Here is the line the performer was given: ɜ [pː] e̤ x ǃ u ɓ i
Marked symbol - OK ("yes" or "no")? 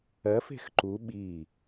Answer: no